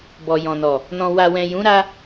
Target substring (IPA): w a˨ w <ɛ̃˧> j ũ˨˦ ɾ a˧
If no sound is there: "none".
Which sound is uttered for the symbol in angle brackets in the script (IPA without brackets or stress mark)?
ɛ̃˨